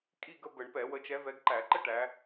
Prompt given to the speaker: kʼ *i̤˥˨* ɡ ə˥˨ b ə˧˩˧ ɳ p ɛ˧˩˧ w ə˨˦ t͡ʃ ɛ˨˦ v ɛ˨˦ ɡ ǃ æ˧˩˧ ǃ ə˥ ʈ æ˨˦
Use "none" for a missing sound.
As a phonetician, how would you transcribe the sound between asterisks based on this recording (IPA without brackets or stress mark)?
i˥˨